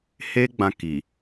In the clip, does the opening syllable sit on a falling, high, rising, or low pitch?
high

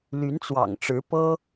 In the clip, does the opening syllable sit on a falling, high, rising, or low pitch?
rising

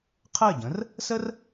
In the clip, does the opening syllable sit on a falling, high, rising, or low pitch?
falling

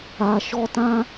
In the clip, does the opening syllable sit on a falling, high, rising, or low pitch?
low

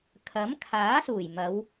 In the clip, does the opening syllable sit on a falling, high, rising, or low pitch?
rising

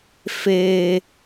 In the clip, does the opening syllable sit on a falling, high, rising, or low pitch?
low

